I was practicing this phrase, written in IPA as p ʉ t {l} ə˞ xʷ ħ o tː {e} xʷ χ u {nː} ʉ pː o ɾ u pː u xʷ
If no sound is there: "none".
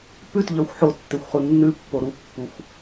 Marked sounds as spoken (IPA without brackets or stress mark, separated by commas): ʎ, e, nː